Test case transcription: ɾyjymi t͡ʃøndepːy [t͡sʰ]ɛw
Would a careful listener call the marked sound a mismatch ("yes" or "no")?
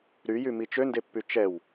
yes